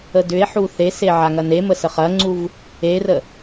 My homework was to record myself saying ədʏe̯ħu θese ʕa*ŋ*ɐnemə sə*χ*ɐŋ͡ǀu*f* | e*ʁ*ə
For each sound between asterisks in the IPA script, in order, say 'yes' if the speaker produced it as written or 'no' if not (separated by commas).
yes, yes, no, no